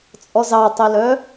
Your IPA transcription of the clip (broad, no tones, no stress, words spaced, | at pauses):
t͡sʼɔzɑtˤelœ